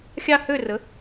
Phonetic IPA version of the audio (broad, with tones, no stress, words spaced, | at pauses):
xʲɑ˦˨hø˦˨rə˩˥